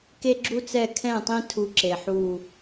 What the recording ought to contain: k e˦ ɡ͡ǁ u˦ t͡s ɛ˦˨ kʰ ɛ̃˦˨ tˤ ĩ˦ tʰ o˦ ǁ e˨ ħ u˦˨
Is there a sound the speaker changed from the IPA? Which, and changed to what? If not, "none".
o˦ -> u˦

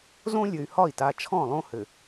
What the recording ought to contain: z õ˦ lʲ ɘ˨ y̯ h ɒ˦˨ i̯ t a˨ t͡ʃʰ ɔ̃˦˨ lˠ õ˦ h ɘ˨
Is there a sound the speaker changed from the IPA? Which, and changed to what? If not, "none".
none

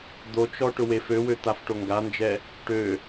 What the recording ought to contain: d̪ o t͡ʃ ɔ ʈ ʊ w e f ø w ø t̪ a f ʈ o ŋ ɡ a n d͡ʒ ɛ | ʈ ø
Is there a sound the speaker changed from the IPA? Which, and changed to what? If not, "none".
none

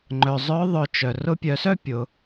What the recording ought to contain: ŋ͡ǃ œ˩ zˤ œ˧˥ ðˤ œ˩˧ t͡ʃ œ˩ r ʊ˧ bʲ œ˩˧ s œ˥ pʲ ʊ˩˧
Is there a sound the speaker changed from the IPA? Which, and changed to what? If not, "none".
bʲ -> pʲ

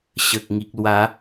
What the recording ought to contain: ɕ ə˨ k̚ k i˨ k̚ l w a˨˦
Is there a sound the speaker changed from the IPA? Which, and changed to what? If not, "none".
k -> ŋ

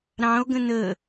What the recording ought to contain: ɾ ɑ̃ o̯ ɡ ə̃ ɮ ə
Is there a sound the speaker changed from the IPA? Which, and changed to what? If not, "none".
ɮ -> n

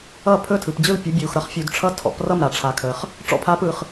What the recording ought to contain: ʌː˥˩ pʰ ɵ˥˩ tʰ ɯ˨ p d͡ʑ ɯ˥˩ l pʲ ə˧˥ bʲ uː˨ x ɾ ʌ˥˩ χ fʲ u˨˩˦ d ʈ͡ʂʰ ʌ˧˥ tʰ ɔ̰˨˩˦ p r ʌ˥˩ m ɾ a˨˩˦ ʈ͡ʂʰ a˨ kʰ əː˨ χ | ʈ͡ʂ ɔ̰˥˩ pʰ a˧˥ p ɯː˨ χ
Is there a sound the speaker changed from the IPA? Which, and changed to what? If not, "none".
none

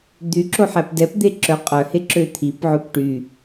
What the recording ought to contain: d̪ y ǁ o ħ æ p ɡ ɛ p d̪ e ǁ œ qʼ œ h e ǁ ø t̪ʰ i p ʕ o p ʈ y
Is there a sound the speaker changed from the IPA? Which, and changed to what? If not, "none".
ɡ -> d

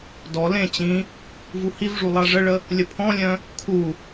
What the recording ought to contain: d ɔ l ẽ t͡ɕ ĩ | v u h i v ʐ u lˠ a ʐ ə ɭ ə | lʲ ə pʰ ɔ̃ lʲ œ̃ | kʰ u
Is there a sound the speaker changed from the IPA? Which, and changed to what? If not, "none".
none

